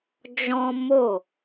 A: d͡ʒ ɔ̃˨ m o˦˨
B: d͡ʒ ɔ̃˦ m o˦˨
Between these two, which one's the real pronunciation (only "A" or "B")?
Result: B